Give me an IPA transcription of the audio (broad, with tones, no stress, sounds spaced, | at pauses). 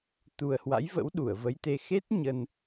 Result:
t̪ u˨˩ ə̯ h w a̰˧˥ j v ə̰˧˥ w ɗ u˧˩ ə̯ v ə˨˦ j t̪ e˧ x e˦˥ t̚ ɲ ə˧ n